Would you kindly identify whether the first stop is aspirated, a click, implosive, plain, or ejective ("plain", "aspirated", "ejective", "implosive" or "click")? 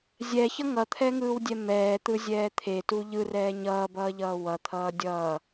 aspirated